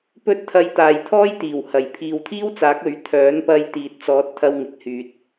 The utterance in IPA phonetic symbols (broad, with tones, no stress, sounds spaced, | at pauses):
p ɵ˥ t̚ t̪ʰ ɐ˧ j t̪ aː˨ j t̪ʰ ɔː˥ j t̪ iː˨˩ w h ɐ˨˩ j pʰ iː˨ w t̪ʰ iː˥ w t͡s aː˨˥ k̚ ɵ˨˥ ɥ t̪ʰ œː˨˥ n p ɐ˧ j t̪ iː˨ t̚ t͡s ɔː˨˥ t̚ t̪ʰ ɐ˧ w ŋ ɪ˨˥ k̚ h yː˨ t̚